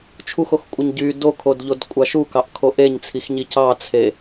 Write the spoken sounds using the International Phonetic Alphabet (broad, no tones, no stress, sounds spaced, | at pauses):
t͡ʃʰ u x o x kʷʼ ɯ ɲ ɟ y d o kʰ o d ʎ o d kʷʼ ɑ ʃ u k ɑ ʔ kʰ o ʔ e ɲ t͡sʰ i x ɲ i c ɑ t͡sʰ e